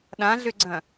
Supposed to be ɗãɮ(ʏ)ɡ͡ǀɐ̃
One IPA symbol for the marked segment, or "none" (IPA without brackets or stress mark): ʏ